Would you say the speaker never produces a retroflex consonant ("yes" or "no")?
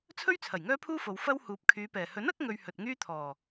yes